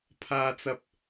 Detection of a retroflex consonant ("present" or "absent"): absent